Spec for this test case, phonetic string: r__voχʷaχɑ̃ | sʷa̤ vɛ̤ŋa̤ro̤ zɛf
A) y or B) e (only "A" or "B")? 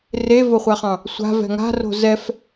B